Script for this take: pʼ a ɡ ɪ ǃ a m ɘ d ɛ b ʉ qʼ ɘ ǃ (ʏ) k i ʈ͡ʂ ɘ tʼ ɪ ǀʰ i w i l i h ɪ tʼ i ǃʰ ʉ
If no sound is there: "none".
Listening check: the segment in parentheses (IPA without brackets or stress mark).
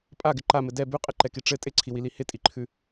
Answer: ɛ